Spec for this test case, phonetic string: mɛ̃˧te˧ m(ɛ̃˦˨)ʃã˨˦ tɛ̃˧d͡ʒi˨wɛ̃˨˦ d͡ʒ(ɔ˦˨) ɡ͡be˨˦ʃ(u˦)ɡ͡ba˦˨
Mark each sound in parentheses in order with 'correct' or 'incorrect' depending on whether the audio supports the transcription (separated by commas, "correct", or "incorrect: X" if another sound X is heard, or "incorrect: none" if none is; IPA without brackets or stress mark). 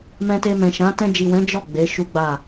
incorrect: ɛ̃˨, correct, correct